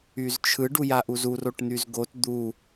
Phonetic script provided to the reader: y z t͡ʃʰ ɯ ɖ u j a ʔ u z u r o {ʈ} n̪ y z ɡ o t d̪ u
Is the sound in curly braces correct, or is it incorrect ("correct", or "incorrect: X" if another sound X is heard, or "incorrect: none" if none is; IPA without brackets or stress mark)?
correct